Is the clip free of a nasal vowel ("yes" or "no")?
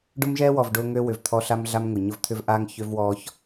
yes